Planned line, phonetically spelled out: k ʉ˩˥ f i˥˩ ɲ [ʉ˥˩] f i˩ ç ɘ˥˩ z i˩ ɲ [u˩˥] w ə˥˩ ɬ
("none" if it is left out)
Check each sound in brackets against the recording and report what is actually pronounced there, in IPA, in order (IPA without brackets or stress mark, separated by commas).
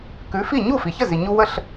u˥˩, u˧